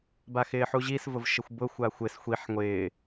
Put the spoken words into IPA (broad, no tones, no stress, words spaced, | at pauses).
baxɪːħuʑis vʊvʃɪxʷbʊ xʷaxʷɪs xʷiħ ŋʷɪː